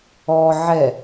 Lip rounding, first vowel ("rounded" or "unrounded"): rounded